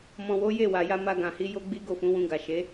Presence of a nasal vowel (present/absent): present